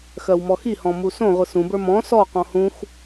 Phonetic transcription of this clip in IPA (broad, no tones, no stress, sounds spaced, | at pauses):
x ɜ w m ɔ x i h ɔ̃ m u s õ ʁʷ ɯ s ũ b ə˞ m ɔ̃ s ɔ q ɔ̃ h ũ x